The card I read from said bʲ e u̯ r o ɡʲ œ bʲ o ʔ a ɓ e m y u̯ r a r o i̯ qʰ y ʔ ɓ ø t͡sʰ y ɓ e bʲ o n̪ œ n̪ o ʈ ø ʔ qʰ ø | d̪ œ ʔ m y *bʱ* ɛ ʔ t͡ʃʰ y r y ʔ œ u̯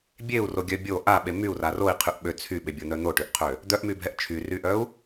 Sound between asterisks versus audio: correct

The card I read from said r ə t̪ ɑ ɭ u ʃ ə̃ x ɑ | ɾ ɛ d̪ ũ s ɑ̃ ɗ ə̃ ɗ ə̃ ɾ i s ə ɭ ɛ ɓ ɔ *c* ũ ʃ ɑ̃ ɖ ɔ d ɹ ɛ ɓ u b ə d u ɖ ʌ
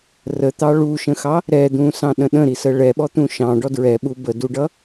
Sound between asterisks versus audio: incorrect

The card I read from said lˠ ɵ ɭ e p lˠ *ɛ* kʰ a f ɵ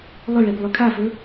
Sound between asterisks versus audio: incorrect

